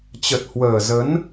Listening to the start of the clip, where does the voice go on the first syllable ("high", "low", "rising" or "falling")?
low